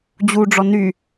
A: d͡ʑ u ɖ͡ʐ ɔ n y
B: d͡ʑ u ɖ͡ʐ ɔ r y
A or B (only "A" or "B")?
A